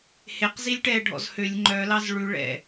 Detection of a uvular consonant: present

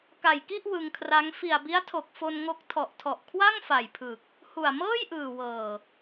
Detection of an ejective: absent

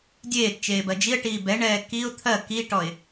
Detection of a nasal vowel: absent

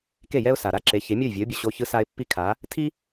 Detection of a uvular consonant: absent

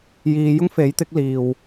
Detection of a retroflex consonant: absent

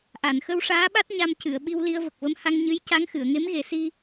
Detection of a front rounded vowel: absent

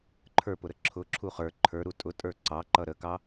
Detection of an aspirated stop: present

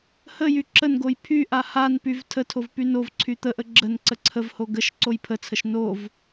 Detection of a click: present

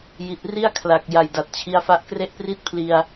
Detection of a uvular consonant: absent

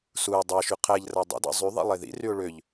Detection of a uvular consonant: present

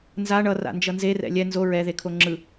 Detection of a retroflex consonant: present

